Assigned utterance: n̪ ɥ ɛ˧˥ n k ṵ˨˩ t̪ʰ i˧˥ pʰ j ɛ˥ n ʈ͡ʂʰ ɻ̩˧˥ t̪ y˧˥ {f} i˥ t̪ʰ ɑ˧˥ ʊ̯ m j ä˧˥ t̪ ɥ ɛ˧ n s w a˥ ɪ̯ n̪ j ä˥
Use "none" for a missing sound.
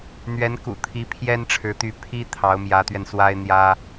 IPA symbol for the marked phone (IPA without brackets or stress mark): pʰ